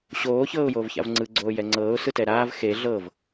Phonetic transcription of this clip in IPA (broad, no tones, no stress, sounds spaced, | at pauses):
ɕ oː ç ɤː ʊ̯ j oː v ç a̰ v ŋ͡ǀ ɯ ɡ͡ǀ oː j ɛ ŋ͡ǀ ɤː ʊ̯ s ɯ t ɛ ɾ aː v x e ɮ ɤ v